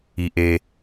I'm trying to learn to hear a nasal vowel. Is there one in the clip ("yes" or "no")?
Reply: no